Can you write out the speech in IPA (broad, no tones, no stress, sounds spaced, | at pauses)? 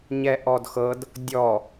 ɲ ɛ ʔ ɔ d x ɤ d | dʲ ɔ